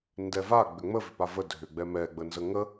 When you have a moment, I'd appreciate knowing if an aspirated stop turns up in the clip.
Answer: no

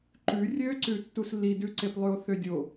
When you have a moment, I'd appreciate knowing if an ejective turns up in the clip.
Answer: no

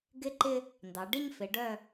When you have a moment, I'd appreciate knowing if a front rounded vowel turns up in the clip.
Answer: yes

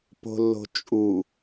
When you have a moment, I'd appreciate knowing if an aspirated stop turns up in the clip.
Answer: no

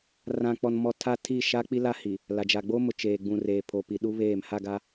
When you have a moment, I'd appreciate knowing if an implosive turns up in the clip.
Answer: yes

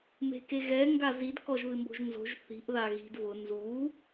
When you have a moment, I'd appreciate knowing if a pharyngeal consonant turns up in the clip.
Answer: no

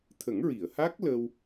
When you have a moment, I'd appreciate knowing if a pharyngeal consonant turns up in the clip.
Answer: no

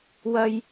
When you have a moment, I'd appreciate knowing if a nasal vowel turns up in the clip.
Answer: no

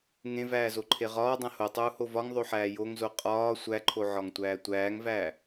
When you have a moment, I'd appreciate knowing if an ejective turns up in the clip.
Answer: yes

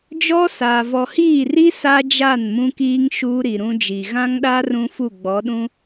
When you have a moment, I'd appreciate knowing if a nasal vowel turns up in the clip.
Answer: yes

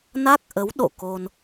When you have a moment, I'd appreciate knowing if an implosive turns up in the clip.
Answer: yes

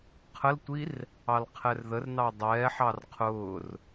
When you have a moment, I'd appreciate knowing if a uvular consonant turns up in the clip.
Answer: yes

